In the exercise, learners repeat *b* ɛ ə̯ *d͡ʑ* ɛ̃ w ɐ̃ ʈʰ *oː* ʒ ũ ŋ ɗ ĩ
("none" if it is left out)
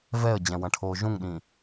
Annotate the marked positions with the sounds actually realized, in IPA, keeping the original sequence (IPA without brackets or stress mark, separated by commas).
v, d͡ʑ, oː